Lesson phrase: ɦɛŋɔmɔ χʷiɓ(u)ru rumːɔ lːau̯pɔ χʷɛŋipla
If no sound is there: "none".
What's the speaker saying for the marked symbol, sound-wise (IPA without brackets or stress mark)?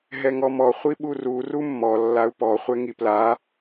u